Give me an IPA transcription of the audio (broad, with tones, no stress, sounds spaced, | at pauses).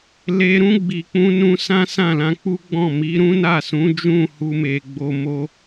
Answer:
l e˧ ɾ ũ˦ ɡ͡b i˧ k͡p ũ˦ n ũ˦ s ã˦ s ã˦˨ l ã˧ k͡p u˦ ɡ͡b ɔ̃˦˨ m i˨˦ ɾ ũ˦ n a˦˨ s ũ˨˦ d͡ʒ ũ˦˨ h u˧ m e˨ ɡ͡b o˧ m o˧